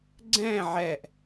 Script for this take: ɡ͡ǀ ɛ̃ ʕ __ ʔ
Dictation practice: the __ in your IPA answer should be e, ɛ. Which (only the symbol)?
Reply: ɛ